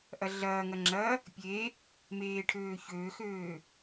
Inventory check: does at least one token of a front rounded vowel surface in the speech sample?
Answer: yes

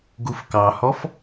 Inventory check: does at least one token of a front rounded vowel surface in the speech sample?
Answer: no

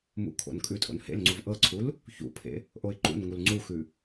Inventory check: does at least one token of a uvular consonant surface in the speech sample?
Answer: no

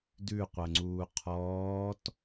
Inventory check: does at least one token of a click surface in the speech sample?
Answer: yes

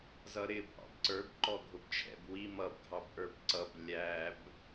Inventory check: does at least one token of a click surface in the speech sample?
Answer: yes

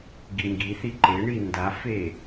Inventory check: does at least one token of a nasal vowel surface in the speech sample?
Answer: no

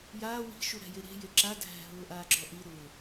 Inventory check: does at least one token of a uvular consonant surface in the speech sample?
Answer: no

